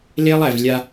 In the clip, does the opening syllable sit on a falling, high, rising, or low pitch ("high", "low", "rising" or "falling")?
high